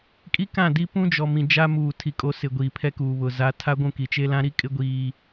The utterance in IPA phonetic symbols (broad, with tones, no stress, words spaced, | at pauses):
kʼi˦kã˦˨ di˦pũ˦d͡ʒɔ˨mĩ˨ d͡ʒa˦muː˨ tʰi˨kʼo˨˦ sɪ˨ ɡʷiː˨pʰɛ˦kuː˨βʊ˨ za˨˦tʰa˦ ɡʷũ˦˨ki˨ t͡ʃe˦lã˦ ɾi˦kʼɪ˦ ɡʷiː˦